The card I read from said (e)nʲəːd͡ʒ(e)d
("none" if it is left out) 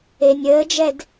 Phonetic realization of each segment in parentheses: e, ɛ

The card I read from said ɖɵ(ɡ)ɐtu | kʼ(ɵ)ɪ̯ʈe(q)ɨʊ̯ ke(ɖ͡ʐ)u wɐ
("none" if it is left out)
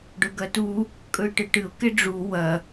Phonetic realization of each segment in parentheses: ɡ, ɵ, ʈ, ɖ͡ʐ

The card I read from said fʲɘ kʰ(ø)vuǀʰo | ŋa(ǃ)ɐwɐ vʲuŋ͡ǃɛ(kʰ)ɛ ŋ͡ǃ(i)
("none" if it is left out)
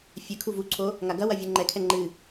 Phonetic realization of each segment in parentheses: u, ɡ, kʰ, ɨ

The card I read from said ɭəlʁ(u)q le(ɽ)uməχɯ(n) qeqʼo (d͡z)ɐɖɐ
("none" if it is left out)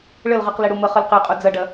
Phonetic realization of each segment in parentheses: ɯ, ɽ, l, d͡z

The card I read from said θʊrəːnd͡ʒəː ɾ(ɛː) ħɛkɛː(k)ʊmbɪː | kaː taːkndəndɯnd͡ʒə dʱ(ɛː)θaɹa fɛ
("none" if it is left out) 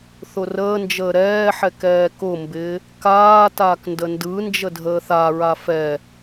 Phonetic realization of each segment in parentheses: ɛː, k, əː

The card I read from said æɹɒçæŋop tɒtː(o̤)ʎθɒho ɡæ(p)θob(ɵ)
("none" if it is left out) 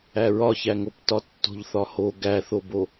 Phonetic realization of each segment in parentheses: o̤, none, o

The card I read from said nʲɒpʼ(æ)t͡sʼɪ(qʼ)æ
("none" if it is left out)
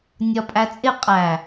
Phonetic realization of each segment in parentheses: æ, qʼ

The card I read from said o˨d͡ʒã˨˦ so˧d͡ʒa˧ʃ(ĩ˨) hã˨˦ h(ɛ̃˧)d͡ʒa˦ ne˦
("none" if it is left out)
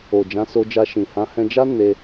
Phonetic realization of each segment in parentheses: ĩ˨, ɛ̃˧

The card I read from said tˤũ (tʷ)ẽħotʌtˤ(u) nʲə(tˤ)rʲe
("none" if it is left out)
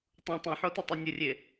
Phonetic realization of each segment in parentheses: tˤ, u, none

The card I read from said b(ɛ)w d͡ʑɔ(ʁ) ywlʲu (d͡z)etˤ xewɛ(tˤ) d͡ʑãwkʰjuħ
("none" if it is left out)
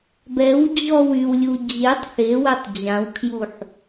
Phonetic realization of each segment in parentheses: ɛ, w, d͡ʑ, tˤ

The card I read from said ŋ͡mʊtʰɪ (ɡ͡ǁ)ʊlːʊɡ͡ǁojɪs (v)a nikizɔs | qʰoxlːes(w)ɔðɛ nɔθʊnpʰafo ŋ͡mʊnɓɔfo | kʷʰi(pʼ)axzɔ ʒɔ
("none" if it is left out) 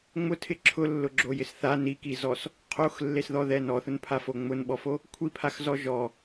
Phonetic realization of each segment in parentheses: ǁʰ, θ, ð, pʰ

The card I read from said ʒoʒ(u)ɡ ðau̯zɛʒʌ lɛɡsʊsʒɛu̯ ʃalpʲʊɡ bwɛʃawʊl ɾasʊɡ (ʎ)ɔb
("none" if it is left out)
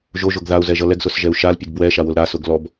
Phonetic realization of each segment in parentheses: o, l

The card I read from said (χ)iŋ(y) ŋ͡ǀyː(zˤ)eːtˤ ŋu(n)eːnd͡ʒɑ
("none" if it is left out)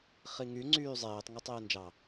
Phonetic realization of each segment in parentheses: χ, y, zˤ, tˤ

